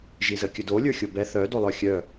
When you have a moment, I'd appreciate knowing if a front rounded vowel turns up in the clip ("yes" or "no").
yes